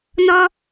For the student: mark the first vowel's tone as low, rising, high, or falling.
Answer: high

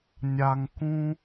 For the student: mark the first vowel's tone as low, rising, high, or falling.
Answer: low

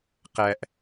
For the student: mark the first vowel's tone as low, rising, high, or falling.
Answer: low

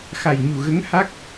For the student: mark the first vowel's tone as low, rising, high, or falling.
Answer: low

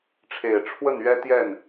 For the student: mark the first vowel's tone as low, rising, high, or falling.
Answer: low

